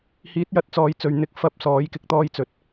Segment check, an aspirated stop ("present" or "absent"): absent